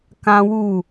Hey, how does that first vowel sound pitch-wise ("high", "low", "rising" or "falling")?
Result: high